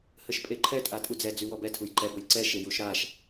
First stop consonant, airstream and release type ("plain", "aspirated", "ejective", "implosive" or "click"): ejective